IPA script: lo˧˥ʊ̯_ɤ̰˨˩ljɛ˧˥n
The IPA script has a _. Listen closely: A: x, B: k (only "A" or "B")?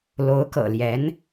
B